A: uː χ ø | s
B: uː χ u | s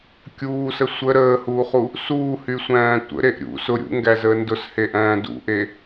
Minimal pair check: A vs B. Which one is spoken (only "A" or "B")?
B